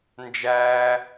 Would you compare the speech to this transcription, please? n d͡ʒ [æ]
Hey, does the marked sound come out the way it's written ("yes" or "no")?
no